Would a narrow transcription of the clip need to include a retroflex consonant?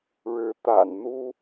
yes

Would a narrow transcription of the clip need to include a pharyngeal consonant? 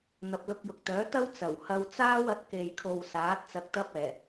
no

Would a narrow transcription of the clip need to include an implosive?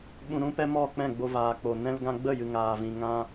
yes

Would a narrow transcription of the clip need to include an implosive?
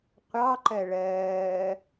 no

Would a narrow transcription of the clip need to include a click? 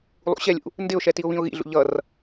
no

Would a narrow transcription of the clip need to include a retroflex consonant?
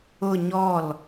no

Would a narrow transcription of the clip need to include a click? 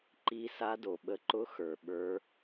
yes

